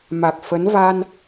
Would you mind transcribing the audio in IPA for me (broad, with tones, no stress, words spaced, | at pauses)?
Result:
ma˨˩k̚ fə˨˦n va˧n